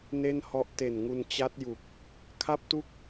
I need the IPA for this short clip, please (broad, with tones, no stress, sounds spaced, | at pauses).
n e˥˩ n h ɔ˦˥ ʔ t e˨˩ n ŋ u˧ n t͡ɕ a˦˥ t̚ j u˨˩ k̚ | kʰ a˥˩ p̚ t u˥˩ k̚